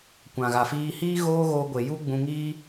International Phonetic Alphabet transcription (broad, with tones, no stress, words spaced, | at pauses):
kʷã˨ɣa˨fiː˧hiː˦ ɣoː˦ɣoː˧ɡʷe˨ ju˦ɡ͡bũ˧ŋiː˦